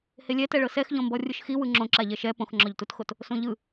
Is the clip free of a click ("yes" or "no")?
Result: no